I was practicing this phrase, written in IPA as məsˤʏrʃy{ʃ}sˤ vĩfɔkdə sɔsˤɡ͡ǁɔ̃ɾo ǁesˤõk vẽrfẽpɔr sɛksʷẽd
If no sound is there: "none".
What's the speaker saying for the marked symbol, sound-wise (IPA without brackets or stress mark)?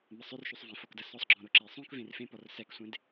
none